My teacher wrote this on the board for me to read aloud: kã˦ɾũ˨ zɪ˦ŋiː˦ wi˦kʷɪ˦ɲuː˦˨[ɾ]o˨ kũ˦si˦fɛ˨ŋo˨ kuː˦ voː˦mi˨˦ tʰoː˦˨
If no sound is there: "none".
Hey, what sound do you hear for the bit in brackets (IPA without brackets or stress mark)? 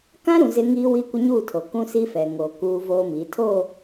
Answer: tʰ